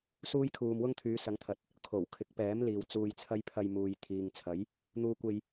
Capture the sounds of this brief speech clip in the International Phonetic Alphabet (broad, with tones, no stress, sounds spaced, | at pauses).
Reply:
s uː˥ j kʰ uː˧ m w ʊ˥ ŋ t̪ʰ yː˨˧ s ɐ˨˥ ŋ t̪ʰ ɐ˨ t̚ | kʰ o˨˩ w kʰ ɪ˨˥ k̚ p ɛː˨˥ m l iː˨ w t͡s uː˧ j t͡sʰ ɐ˥ j pʰ ɐ˧ j m uː˨ j t̪ʰ iː˨ ŋ t͡sʰ ɐ˨˥ j | n̪ uː˧ kʷ e˧ j